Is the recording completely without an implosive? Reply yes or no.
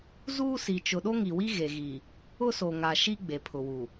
no